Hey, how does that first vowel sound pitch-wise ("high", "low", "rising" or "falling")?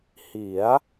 rising